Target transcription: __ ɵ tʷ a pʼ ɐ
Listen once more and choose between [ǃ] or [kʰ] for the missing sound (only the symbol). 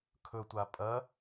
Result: kʰ